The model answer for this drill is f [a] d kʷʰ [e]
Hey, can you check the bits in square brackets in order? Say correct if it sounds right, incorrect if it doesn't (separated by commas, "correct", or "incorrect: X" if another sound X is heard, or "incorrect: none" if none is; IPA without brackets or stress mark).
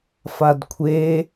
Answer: correct, correct